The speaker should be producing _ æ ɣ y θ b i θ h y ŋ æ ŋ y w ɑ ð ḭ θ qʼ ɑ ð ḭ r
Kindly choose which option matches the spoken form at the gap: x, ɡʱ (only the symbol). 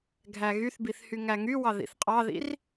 ɡʱ